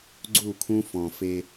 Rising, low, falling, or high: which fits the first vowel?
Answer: falling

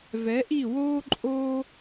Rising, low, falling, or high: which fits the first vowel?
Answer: rising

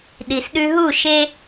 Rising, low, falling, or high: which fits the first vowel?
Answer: low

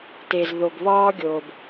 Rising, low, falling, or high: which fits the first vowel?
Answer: low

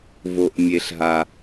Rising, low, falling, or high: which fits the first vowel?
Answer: low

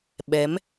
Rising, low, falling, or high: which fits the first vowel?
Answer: rising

